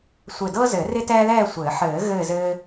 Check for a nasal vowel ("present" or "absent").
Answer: absent